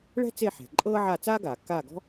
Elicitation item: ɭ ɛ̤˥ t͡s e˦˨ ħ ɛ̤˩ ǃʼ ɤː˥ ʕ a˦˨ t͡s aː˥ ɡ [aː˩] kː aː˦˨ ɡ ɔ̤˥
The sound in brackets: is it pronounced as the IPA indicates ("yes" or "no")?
yes